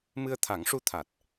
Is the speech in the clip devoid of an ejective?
yes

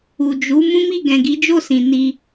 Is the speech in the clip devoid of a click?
yes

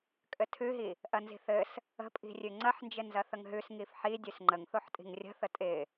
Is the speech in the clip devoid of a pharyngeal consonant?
no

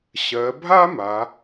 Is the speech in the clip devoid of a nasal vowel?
yes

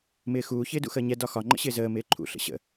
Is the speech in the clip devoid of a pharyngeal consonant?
yes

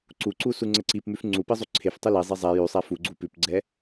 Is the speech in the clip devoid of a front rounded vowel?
yes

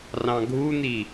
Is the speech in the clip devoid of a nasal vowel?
no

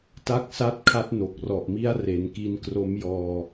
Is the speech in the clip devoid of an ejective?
yes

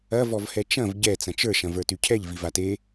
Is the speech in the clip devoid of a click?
yes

